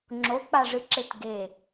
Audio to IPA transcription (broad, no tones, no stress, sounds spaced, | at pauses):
ŋ͡ǁ o k͡p a ʐ ɨ ǁ e t ɡ e